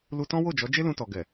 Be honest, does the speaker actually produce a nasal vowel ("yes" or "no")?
yes